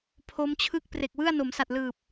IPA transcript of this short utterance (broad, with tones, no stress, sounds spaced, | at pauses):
pʰ o˦˥ m t͡ɕʰ ɯ˥˩ k̚ p r e˨˩ k̚ w ɯ˥˩ a̯ n o˩˦ m s a˨˩ t̚ l ɯː˨˩ p̚